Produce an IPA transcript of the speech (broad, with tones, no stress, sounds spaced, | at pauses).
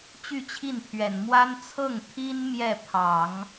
t͡ɕ y˥˧ t͡ɕʰ i˥˩ n pʰ ɥ ɛ˨˩ n m w a˥ n t͡sʰ ɤ˥˩ ŋ t̪ʰ i˥ n m j ɛ˥˩ pʰ ɑ˨˩˦ ŋ